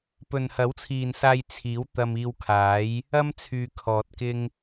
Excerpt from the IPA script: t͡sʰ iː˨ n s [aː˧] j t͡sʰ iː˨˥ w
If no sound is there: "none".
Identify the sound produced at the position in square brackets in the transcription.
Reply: aː˧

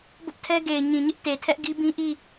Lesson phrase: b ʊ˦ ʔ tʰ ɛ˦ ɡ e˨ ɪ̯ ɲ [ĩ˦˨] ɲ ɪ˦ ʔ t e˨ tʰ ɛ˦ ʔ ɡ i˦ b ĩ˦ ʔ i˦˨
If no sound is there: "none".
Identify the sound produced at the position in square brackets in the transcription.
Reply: ĩ˨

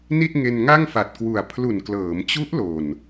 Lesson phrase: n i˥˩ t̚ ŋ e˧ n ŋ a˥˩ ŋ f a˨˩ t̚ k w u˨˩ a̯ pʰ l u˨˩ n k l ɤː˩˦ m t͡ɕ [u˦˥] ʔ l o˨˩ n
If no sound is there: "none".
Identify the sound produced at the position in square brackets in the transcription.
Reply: u˦˥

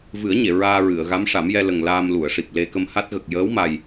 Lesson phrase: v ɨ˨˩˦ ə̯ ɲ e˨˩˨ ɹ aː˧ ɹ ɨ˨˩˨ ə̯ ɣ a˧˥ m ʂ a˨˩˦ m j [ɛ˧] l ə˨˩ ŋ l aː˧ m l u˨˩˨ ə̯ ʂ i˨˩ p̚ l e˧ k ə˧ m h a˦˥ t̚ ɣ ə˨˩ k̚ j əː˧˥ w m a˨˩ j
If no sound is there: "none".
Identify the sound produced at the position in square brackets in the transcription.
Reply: ɛ˧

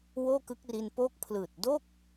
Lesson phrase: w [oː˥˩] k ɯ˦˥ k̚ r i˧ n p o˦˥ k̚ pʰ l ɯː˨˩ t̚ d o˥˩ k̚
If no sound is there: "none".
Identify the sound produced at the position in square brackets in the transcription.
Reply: oː˥˩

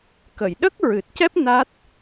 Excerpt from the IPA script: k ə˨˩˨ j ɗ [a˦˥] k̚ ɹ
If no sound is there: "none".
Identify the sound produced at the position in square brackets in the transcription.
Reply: ə˦˥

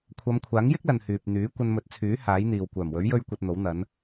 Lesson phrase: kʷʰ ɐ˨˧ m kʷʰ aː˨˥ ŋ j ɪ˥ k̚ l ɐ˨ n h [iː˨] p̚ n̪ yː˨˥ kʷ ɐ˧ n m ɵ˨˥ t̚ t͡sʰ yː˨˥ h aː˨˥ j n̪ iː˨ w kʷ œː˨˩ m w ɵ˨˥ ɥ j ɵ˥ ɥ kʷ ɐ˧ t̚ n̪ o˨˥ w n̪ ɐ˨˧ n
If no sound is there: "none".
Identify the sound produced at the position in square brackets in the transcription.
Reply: yː˨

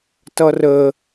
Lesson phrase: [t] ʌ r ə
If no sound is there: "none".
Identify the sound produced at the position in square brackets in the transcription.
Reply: t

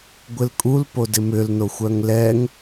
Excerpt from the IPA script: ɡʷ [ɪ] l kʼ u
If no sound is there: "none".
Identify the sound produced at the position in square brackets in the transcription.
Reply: ɪ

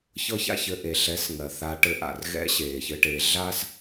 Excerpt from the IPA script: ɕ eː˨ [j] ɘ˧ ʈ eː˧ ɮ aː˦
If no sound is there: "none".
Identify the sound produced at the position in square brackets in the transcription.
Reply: ç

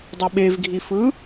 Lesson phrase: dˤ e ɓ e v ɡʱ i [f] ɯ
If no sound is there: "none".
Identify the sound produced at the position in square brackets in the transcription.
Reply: f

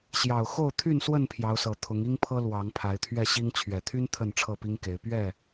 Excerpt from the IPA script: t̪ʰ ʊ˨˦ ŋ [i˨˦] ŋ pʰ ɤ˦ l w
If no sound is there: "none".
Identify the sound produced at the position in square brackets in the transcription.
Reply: i˦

